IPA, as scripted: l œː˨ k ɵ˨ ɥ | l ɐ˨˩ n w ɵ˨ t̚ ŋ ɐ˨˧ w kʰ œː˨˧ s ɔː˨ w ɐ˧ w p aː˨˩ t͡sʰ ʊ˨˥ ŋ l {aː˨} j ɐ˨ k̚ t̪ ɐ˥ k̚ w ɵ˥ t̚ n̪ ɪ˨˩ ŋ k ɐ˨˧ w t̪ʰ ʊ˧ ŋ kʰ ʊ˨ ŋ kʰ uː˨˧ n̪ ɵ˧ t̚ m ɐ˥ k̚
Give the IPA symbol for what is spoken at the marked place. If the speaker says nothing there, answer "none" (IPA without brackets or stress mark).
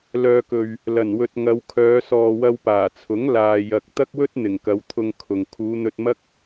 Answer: aː˨